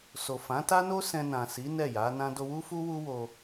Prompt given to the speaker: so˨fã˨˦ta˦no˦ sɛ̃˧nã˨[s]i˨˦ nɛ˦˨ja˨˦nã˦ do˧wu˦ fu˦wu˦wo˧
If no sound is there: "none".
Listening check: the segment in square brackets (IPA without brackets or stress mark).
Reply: s